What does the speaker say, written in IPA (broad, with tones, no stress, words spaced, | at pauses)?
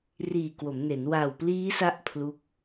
riː˨˩kwo˩˦mne˩˦n wa˨˩wpliː˦˥sa˦˥ʔ pʰlu˦˥k̚